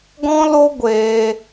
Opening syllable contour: high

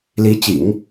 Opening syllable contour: rising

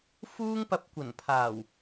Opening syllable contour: high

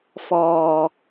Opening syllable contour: low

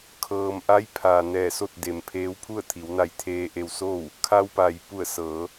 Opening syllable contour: low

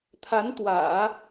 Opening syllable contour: rising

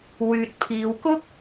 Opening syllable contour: low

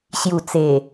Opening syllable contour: low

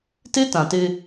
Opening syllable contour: high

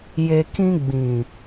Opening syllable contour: low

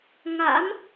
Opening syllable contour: rising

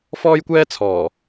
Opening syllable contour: high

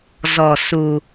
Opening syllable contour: low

